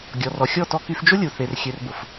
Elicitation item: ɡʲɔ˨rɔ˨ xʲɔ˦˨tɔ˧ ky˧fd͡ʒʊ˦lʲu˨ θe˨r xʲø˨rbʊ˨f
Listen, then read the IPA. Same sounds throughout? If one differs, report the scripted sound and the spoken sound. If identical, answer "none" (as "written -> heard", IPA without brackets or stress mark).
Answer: none